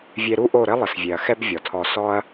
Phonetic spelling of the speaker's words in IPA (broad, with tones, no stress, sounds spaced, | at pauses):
vʲ e˧ ɾ u˦ ʔ o˦˨ ɾ ɘ˦ lˠ ɘ˨ s vʲ e˨ ɐ̯ x ɛ˦ b vʲ ɔ˨ tʰ ɔ˧ s ɔ˦ ɐ̯